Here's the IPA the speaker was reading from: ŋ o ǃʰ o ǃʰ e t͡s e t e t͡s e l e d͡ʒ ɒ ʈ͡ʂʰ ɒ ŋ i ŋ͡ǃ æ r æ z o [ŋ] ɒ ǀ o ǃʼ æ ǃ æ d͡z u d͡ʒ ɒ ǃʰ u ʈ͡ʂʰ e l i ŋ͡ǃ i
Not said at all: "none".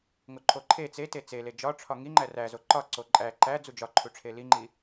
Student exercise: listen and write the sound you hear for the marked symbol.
ǃ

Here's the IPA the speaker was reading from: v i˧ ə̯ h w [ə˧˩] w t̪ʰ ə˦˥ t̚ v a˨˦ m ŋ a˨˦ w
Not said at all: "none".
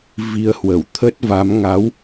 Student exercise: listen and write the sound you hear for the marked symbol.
ə˧˩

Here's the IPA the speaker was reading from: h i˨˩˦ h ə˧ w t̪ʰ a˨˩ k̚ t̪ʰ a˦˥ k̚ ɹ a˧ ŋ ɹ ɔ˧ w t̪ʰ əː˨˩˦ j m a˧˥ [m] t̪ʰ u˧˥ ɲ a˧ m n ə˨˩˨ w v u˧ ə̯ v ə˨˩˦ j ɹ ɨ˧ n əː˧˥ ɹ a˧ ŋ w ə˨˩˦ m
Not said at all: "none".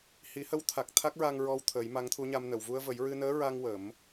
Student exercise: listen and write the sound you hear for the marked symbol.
ŋ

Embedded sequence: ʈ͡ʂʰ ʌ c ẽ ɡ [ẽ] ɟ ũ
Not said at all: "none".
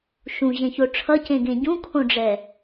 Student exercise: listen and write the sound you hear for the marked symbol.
ẽ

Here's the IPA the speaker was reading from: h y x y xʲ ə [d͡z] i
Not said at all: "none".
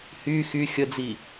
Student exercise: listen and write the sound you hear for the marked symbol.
d͡z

